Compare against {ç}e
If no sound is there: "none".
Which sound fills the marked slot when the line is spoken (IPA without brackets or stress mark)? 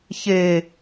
ç